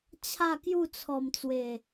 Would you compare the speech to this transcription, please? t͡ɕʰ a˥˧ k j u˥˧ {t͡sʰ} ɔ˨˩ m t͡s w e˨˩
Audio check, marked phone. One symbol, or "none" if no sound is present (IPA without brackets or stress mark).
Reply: t͡sʰ